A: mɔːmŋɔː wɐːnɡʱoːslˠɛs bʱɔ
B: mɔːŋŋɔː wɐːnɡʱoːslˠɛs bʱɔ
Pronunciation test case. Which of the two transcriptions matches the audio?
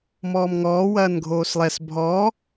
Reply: A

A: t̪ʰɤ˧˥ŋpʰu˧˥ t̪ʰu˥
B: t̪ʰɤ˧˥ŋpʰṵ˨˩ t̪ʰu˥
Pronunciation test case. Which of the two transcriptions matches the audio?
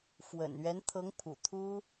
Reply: B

